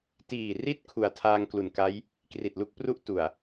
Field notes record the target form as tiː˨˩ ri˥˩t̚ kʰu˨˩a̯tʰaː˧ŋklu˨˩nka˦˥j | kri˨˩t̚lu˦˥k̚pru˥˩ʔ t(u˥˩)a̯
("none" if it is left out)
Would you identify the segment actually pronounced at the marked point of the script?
u˨˩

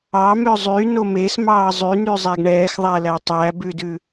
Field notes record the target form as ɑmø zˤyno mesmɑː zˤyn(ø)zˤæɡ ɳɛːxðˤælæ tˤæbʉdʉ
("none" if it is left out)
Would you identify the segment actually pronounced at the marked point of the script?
y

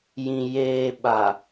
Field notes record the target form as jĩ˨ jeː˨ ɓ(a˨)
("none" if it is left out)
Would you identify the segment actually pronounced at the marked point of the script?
a˨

